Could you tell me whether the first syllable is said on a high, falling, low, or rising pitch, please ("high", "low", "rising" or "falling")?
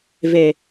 low